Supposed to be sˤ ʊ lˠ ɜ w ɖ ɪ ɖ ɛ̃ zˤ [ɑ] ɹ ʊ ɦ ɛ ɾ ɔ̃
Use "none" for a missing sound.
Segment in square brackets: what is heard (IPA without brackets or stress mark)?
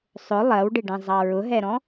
ɑ